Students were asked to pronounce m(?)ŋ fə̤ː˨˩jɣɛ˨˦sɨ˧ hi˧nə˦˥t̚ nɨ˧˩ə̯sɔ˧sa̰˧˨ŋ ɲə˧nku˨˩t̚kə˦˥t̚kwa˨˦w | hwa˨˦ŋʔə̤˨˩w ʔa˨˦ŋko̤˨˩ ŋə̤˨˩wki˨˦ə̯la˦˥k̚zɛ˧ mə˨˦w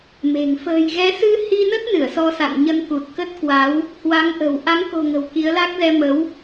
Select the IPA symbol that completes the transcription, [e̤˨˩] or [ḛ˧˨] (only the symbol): e̤˨˩